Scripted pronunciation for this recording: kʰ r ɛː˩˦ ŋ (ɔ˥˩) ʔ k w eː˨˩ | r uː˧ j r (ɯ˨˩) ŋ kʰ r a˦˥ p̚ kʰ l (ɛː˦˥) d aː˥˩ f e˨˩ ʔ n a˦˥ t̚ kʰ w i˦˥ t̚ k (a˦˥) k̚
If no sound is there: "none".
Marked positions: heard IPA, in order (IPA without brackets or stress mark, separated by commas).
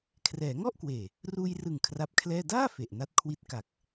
ɔ˥˩, ɯ˨˩, ɛː˥˩, a˨˩